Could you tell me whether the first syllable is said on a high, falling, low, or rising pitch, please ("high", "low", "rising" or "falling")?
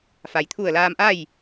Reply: low